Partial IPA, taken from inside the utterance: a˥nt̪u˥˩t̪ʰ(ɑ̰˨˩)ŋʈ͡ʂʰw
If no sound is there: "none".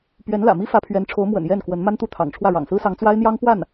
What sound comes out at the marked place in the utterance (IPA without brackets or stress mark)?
ɑ̰˨˩